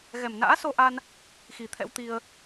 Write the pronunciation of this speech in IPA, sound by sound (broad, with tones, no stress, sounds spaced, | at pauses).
ɣ ɛ˨˩ m n a̰ː˧˥ s o˧ ʔ a˧ n | x i˨˩ t̪ʰ ɛ̰˧˥ w t̪ i˧ ə̯